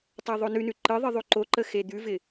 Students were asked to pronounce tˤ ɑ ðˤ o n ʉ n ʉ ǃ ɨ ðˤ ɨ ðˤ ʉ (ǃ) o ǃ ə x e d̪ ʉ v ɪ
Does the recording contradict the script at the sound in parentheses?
no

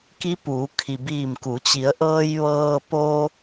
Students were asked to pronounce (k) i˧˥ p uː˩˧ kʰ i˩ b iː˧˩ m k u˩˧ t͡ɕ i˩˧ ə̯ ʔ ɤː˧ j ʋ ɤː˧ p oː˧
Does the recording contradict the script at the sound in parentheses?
no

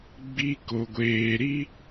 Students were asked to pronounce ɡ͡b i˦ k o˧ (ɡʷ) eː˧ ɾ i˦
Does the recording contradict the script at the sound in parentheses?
no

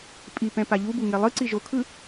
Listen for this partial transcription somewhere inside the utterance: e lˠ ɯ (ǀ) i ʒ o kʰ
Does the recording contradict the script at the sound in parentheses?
no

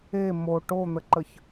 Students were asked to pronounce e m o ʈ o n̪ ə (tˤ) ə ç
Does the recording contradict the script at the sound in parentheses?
yes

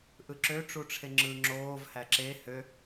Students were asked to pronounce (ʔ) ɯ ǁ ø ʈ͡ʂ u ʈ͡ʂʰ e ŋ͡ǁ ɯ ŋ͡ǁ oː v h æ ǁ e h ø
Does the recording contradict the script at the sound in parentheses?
no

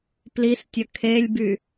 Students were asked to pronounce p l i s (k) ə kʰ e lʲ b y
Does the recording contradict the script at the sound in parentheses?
yes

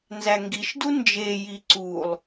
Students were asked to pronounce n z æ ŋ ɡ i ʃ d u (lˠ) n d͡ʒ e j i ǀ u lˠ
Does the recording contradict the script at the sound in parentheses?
yes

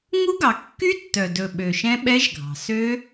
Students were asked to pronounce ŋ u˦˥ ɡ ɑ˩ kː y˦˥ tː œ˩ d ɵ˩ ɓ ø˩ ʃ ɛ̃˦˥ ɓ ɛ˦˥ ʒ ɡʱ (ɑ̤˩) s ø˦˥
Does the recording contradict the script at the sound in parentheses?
no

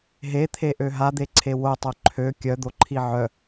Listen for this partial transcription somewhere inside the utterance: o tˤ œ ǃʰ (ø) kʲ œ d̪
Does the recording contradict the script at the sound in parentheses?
no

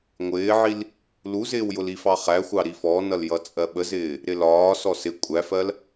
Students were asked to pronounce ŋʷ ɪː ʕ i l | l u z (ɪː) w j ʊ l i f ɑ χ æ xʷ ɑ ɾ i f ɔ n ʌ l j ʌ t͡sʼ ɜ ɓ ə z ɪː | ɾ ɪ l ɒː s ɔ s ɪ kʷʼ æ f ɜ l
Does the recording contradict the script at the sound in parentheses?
no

